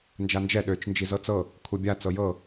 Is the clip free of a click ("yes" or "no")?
yes